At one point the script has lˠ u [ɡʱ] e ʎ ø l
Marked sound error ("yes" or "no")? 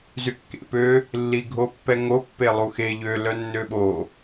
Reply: yes